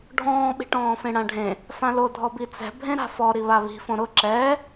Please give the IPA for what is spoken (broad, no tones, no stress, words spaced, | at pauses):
ɖʱɔ̃ːɓi̤ʈɔ̃ːfẽ ɽãɖʱẽ | fãlodʱɔ bit͡sɛ̤ bʱẽɾa̤fɔ ɾiβaβi̤fõ ɾʊ ǁɛː